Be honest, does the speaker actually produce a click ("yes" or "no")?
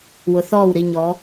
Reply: no